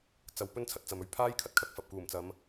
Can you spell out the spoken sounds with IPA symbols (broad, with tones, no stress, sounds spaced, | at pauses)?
t͡s ɐ˨ w p ɵ˥ n t͡sʰ ɐ˧ t̚ t͡s ɐ˨ m ɵ˧ ɥ pʰ aː˥ j kʰ ɐ˥ t̚ kʰ ɐ˧ k̚ f ɐ˨ p̚ k uː˨˩ m t͡s ɐ˨˧ m